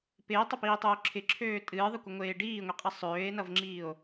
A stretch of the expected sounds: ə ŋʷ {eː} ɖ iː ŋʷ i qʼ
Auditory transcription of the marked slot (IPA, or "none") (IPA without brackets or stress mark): eː